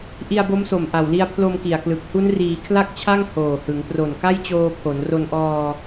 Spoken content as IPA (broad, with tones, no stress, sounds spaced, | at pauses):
ʔ i˧ a̯ b o˦˥ m s o˨˩ m ʔ a˨˩ w l i˧ a̯ pʰ l o˧ m k i˨˩ a̯ k l ɯ˨˩ k̚ h u˦˥ n r iː˩˦ kʰ l a˥˩ k̚ t͡ɕʰ a˥˩ ŋ h oː˨˩ h ɯ˩˦ ŋ p r o˨˩ n k a˥˩ j t͡ɕ oː˧ pʰ o˩˦ n r o˧ n ʔ ɔː˧